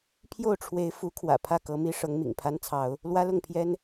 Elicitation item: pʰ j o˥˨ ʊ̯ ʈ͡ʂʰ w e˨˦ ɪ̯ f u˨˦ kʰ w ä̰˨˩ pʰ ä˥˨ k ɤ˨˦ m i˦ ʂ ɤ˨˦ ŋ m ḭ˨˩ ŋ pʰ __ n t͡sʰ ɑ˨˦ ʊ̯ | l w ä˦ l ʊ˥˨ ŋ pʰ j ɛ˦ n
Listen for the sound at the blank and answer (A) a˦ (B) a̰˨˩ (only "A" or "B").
A